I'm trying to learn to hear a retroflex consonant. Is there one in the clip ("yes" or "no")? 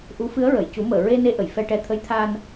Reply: yes